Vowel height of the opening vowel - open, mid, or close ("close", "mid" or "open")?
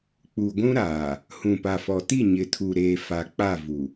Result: close